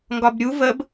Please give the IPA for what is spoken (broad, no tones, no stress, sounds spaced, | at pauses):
ŋ ɡ ɒ b ɾʲ u v ə b